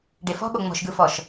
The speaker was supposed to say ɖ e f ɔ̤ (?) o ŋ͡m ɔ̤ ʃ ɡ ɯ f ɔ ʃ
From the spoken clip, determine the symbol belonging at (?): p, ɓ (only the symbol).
ɓ